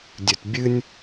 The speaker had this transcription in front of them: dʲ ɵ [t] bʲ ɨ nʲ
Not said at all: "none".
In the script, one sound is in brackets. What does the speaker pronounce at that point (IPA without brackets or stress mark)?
t